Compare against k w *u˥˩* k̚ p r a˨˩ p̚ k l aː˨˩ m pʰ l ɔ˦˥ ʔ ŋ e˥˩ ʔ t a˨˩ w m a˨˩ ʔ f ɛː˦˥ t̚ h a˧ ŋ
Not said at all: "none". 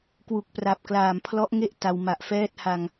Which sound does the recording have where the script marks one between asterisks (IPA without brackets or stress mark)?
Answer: u˨˩